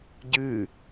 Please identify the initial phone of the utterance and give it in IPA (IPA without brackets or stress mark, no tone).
ɟ